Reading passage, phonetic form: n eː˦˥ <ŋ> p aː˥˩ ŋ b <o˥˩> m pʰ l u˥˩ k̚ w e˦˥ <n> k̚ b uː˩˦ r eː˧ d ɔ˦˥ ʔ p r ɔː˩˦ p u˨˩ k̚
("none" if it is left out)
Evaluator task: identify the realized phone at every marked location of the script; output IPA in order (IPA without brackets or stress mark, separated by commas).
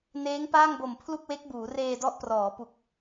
ŋ, o˨˩, none